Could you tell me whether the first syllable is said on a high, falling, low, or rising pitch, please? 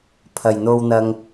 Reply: low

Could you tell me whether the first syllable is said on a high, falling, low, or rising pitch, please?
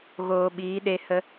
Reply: low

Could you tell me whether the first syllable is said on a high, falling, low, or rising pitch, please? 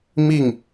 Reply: falling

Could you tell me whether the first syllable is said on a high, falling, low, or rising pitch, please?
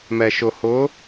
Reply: low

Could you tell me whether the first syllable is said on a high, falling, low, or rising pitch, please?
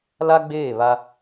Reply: high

